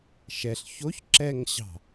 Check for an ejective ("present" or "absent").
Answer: absent